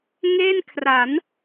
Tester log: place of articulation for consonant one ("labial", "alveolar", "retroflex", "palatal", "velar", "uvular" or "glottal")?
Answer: velar